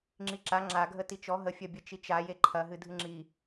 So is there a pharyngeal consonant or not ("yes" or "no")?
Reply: no